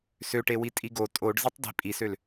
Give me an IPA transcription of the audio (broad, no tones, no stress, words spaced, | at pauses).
søʈewi tʼiɡo tʼoɖ zetˤdi̤ pʼisøl